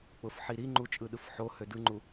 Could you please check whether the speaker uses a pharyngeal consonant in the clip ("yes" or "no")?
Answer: yes